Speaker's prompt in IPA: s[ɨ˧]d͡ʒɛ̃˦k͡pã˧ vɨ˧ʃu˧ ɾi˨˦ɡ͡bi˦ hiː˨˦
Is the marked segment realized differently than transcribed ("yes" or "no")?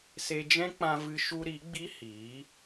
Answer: yes